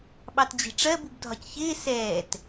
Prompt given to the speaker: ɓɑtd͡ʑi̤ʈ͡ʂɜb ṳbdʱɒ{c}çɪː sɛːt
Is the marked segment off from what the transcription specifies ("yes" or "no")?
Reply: no